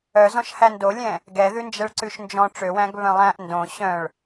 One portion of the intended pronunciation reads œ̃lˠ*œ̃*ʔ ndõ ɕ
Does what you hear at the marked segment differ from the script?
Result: yes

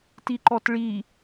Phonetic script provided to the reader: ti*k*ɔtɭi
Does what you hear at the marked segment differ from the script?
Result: yes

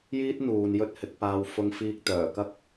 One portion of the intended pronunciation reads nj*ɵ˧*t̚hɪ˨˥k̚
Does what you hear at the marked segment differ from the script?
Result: yes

